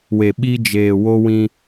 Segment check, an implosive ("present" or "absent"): present